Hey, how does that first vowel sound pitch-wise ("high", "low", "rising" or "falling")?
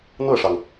falling